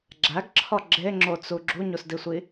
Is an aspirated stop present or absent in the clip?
present